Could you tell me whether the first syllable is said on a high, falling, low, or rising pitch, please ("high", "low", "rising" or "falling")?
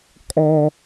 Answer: high